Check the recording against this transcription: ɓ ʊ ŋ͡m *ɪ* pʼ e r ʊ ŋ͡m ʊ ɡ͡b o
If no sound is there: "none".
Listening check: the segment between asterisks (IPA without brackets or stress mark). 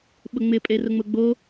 ɪ